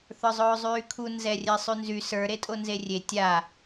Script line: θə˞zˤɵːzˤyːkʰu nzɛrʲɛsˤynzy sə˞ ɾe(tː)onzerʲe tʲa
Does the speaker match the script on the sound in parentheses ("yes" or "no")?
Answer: no